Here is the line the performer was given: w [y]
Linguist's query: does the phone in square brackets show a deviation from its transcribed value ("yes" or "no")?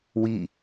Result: yes